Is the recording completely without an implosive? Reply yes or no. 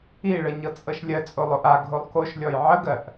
yes